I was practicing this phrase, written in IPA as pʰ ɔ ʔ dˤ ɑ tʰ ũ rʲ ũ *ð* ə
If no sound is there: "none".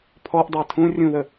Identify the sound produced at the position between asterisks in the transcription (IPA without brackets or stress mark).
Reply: ð